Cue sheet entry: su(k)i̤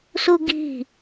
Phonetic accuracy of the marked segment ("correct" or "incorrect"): incorrect